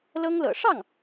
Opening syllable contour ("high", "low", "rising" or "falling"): high